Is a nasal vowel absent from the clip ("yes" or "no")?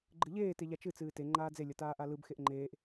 yes